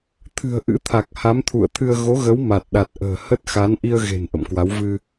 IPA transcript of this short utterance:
t̪ʰ ɨ̤˨˩ ə̯ ʔ ɨ̰˧˥ t̪ʰ a˨˩ k̚ h a˨˦ m t̪ʰ ṵ˧˨ ə̯ t̪ʰ ɨ˧ ə̯ ɣ o˨˦ ɣ ə˨˦ w m a˨˩ t̚ ɗ a˨˩ t̚ ʔ ə̤ː˨˩ h ə˦˥ t̚ x a˨˦ n ʔ i˧ ə̯ ɣ e̤˨˩ n ʔ ə̰˧˨ m k w a˨˦ w v ɨ˧

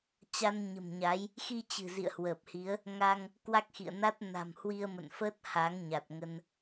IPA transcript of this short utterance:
t͡ɕ a˧ n ɲ ə̤˨˩ m ɲ a˨˦ j | x i˧ t͡ɕ ɨ̤˨˩ z ḭ˧˨ ə̯ h w əː˨˩ p̚ h i˨˦ ə̯ | ŋ a˧ ŋ | k w a˦˥ k̚ x ḭ˧˨ ə̯ n a˦˥ t̚ n a̤˨˩ m h w i˧ ə̯ m ə̰˧˨ n f əː˦˥ t̚ h a˨˦ ŋ ɲ a˨˩ t̚ ŋ ə˧ n

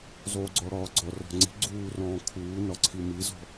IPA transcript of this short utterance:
zˤ uː ɡ͡ǀ ɔ ɽ ɒː ɡ͡ǀ ɔ r ɔ̤ ŋ͡ǀ i̤ ɡ͡ǀ uː r ɔ̃ː kʰ uː n ɒ ǀʰ i m i z ɔ̤

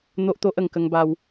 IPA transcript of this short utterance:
n̪ o˦ ʔ t̪ o˦ ʔ ə˨˩ ŋ k ə˧ ŋ b a˧ w

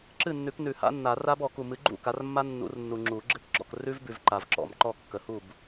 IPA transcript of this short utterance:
ǁ ɨ˥˨ nː ʉ˨˩˦ k n ʉ˨˩˦ h a̰˦˥ nː a˨˩˦ r a˦˥ b ɔ˨˩˦ k u˨ m ɨ˨˦ ɡ͡ǃ ṵ˥˨ k a˨˦ r mː a˦˥ nː ṵ˨˩˦ r nː u˨ ŋ͡ǁ u˨˩˦ ɡ͡ǁ ɨ˦˥ k ɡ͡ǁ ɔ̰˥˨ k r ʉ˦˥ v b ʉ˨ v ǃ a˨ v ǁ ɔ̰˨˩˦ m ǃ ɔ˥˨ kː ə˨˦ h u˥˨ b

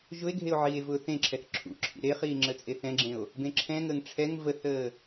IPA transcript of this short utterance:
ʒ ʊ e̯ ɡʱ e o̯ ʕ iː e̯ v ʊː θ ẽ ǁʰ ɛ θ ǁʰ ṵ ǁʰ ḭ ɾ e χ iː ŋ͡ǁ ə t͡sʼ e θ ɛ̃ ɡ͡ǁ ẽ o̯ | b ẽ ǁʰ ɛ̃ ŋ əː ŋ ʈ͡ʂʰ ɛ ŋ v ə θ əː

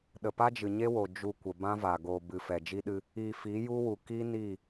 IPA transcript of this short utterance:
ɗ ə˨ p a˦ d͡ʒ ɨ˨ ɲ e˦ w o˨ d͡ʒ u˧ kʷ ə˨ b ã˦ v a˨ ɡ oː˨ b ɨ˨ f ɛ˨ d͡ʒ i˦ ɗ ɨ˦ | i˨ f i˨˦ j u˦ w u˨ k i˦ n i˦˨

